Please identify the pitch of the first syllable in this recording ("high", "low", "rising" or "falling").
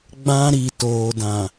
high